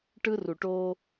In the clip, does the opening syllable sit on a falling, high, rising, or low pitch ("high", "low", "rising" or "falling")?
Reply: high